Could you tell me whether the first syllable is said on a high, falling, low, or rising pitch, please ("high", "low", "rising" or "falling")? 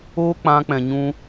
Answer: high